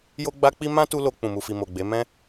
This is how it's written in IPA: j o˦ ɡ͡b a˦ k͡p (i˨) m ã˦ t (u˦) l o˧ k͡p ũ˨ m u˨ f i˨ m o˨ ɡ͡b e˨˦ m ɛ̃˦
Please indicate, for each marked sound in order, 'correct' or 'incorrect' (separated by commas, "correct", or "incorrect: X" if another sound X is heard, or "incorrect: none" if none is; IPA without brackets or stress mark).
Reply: incorrect: i˦, correct